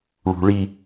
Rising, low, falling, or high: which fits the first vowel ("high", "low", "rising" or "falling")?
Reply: low